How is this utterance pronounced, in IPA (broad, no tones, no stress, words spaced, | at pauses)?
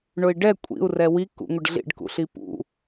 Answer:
ɳʊi̯ɖɛ kʷʼḭu̯ rɛwi kṵŋʷɪɖɮḭɖ kṵɬipṵ